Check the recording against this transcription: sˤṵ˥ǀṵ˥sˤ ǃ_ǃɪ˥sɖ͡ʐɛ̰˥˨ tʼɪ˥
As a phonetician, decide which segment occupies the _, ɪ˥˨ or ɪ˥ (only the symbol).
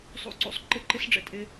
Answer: ɪ˥˨